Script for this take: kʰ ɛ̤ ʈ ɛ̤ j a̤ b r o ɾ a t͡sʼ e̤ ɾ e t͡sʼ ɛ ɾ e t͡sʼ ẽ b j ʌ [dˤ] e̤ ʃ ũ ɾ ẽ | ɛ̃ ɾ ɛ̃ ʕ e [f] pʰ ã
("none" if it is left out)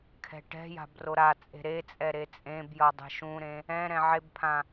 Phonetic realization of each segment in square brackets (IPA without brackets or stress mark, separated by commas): dˤ, b